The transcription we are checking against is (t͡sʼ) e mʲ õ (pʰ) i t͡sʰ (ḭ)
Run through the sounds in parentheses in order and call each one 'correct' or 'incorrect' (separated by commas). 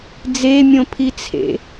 incorrect, correct, incorrect